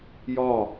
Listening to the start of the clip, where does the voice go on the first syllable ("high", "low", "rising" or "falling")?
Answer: falling